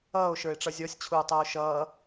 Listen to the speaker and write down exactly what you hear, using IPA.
ʌː o̯ ʃ ə˞ e̯ ʈ͡ʂ ʌ zʲ ɔ sʲ t͡ɕʰ uː tˤ əː o̯ ʃ ʌː

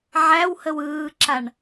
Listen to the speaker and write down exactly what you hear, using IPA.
ʕ æ w h ə w ɯː ǁ a ɳ

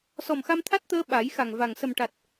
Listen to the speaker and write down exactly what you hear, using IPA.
s ɔ˨˩ m x a˧ m t̪ʰ a˦˥ t̚ t̪ əː˧ ɓ a˨˩˦ j x a˨˩ ŋ v a˨˩ ŋ s ə˨˩ m ʈ a˨˩ t̚

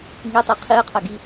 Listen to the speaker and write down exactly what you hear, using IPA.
ŋ i tˤ i qʰ i ə̯ qʰ ɜ ɡ i

